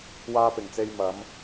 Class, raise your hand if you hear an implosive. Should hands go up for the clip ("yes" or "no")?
no